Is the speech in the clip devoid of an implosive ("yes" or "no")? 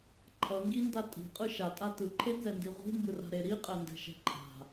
yes